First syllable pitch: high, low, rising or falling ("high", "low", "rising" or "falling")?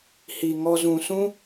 low